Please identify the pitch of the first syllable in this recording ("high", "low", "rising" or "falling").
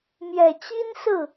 low